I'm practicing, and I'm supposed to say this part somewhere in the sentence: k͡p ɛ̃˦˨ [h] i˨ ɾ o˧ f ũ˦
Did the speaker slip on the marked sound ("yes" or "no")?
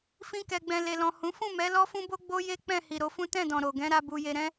no